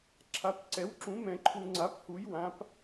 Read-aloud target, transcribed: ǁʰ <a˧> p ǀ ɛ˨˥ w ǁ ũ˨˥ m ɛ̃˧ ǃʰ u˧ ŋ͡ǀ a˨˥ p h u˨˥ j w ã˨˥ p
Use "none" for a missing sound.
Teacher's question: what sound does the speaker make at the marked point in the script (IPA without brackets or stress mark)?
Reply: a˨˥